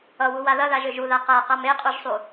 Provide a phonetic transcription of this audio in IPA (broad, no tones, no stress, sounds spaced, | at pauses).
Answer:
ʌ w u w a ð ɐ ð a ʒ ø ʒ u ð a q a q a m e qʼ u ʒ sˤ u